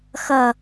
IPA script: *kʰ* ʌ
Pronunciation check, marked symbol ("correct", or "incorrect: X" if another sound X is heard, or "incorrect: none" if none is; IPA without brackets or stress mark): incorrect: x